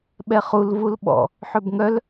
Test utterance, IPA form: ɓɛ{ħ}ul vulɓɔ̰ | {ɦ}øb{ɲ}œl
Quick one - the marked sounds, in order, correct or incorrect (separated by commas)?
incorrect, incorrect, incorrect